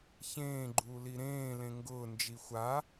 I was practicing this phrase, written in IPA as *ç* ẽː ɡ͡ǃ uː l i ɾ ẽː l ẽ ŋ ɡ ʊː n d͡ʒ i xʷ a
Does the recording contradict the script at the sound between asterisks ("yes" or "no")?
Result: no